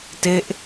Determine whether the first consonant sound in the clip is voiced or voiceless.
voiceless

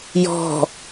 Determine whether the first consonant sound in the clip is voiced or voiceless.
voiced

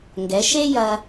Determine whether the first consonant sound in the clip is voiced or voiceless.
voiced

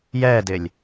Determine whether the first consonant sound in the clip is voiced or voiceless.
voiced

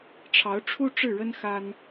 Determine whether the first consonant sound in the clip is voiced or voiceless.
voiceless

